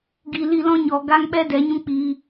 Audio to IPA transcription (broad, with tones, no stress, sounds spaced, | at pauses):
ɡ i˨ l i˦˨ l ɔ̃˦ ɲ ɔ˨ ɡ a˦ ŋ ɓ ɛ˦ d ɛ˨˦ ɲ ũ˦ k͡p iː˧